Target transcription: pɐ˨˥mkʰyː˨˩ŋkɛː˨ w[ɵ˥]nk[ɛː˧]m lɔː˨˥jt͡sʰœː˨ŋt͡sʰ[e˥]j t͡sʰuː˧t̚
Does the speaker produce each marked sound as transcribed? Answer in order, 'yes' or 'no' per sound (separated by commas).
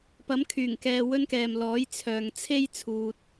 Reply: yes, no, yes